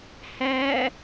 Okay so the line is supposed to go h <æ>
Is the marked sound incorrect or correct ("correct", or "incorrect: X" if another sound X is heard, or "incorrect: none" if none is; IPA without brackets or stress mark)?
correct